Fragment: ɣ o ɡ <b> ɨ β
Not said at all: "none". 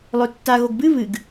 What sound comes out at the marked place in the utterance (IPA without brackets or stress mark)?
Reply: b